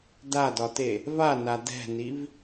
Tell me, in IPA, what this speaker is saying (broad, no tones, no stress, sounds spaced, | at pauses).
d a d ɒ t e | v a n a d ɛ̤ n i v